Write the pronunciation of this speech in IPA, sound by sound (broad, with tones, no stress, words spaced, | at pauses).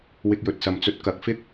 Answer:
wɪ˧k̚jɵ˨t̚sɐ˨m t͡sɵ˨t̚ kɐ˨˥k̚fɪ˥k̚